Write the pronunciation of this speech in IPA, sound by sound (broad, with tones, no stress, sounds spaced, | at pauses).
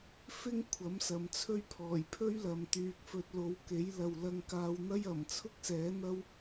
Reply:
f ɪ˥ ŋ kʷʰ ɐ˨˥ m s ɐ˨ m t͡sʰ ɵ˥ ɥ pʰ ɔː˨˩ j pʰ ɵ˥ ɥ l ɐ˨ m t̪ yː˧ k̚ f ɵ˧ t̚ l o˨˥ w k e˨˥ j l ɐ˨ w l ɐ˧ ŋ k aː˧ w n̪ ɐ˥ j ɐ˨˩ m t͡sʰ ʊ˥ k̚ s ɛː˨˥ n̪ ɐ˥ w